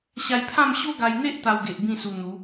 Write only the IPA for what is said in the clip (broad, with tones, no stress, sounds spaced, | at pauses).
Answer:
ɕ a˧ j pʰ ã˥˧ m ɕ o˦ ɡ a˧ j n̪ e˦ ʔ t̪ a˧ w ɡ e˨ ʔ b ĩ˥˧ s u˧ n̪ u˨˦